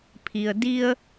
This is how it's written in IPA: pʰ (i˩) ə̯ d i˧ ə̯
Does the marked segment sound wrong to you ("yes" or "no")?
no